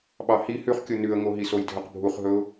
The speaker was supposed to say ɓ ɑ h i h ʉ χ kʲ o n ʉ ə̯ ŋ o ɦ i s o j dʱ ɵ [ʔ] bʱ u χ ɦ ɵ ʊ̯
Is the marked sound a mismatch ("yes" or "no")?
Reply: yes